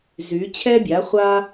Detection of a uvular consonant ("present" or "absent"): present